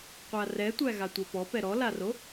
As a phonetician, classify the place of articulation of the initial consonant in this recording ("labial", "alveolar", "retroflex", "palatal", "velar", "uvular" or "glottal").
uvular